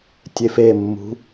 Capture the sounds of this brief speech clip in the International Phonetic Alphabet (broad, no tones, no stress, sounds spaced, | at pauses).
tʲ e f e mː ṳ